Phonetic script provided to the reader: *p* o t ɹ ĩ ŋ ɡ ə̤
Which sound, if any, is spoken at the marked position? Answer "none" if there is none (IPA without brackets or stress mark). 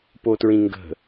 p